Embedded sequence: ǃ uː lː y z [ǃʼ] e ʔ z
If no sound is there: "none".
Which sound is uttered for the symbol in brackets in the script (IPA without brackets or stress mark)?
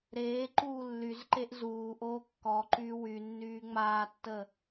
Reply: ǃ